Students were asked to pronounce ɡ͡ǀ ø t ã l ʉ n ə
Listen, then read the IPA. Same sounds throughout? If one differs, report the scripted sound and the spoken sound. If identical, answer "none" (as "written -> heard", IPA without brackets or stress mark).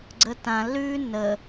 ø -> ə